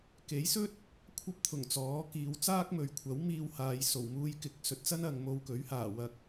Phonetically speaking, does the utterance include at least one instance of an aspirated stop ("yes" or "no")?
yes